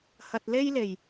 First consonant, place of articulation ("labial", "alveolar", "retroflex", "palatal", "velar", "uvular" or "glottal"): glottal